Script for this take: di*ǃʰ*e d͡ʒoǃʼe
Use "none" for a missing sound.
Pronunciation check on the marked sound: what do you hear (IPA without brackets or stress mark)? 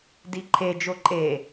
ǃʰ